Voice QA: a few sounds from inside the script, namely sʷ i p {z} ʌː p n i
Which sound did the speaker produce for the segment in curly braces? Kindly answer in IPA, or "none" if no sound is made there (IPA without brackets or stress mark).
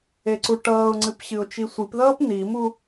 ð